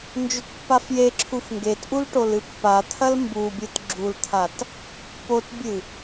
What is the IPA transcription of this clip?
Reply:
nd͡ʒɵtpːafjeǁʰuf ŋɡetʔul ʈolɨpːat̪ʰɐl mbubʲɨt ɡ͡ǁult̪ʰat | potbʲɨ

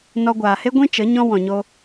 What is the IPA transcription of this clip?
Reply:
nɔ˧ɡʷaː˨he˦ ɡʷĩ˦t͡ʃə˨˦ ɲɔ̃˦ wɔ̃˨ɲo˧

